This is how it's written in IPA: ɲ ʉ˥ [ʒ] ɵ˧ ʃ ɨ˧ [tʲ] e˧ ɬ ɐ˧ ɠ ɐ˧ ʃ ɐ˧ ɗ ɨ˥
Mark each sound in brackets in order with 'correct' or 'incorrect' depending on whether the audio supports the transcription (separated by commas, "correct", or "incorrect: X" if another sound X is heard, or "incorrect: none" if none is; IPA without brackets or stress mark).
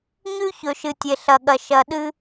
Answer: incorrect: ç, correct